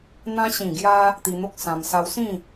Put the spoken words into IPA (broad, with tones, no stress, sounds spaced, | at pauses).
n̪ ã˧ ɕ ĩ˨˩ ɡ j a˧ | t̪ i˧ n̪ o˦ k̚ s ã˧ m s a˧ w s ĩ˥˧